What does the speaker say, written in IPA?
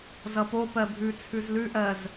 z ʌ p o p ɜ bʱ ʉ t͡sʰ ʉ z l ʉ ʔ ɜ z

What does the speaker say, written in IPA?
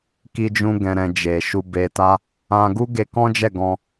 k i˧ d͡ʒ ũ˧ ɡ ɛ̃˨ ɾ ɛ̃˨ d͡ʒ e˨ ʃ u˧ b e˧ t a˦ | ã˧ ɡ u˦ ɡ e˧ k ɔ̃˦ d͡ʒ ɛ˦˨ ɡ ɔ̃˧

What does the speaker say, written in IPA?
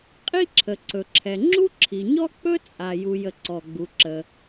qʼ i˥ ǁʰ ə˩ ǀ ɵ˩ ǁʰ ɛ˩ ŋ͡ǁ u˥ ǁʰ i˩ ɲ ɔ˥ k͡p ɵ˥ t͡sʼ a˩ j u˩ j ə˩ ǀ ɔ˩ ɡ͡b u˩ ǁ ə˩

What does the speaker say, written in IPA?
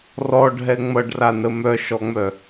r ɔ ɖʱ ɛ ŋ͡m ʌ ɖ r a n ə m œ ʃ ɔ ŋ͡m œ

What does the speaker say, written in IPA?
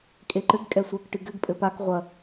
kʼ e ǃ ɘ ɡ kʼ ɛ sʷ ɛ k ʈ ɨ ɡ ɘ ɡ pʼ ɘ p a k ʁʷ ɐ

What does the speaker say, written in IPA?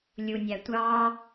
lʲ u nʲ æ tʷ ɑː

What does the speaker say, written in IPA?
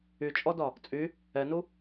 y t͡ʃʼ ɔ d ɒ | t͡sʼ y | ɛ n u

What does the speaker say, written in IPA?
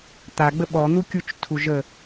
t̪ a ɡ͡b ə ɓ ɔ n̪ u kʲ u t͡ʃ tʰ u ʒ ə

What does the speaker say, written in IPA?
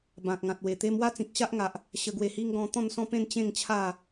b ã˨ k̚ ŋ ã˨ t̚ w e˨˩ t̪ e˦ m w a˥˧ t͡s ĩ˨ k̚ ɕ a˦ ʔ ŋ a˨ ʔ | ɕ ə˧ ɡ w e˧ h i˦ ŋ ɡ ɔ̃˦ t̪ ɔ̃˥˧ n s ɔ̃˥˧ p ẽ˥˧ n t͡ɕ ẽ˥˧ ŋ t͡ɕʰ a˥˧

